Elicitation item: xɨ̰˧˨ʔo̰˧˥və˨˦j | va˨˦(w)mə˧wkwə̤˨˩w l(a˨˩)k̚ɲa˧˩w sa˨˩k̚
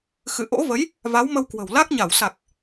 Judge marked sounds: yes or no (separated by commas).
yes, no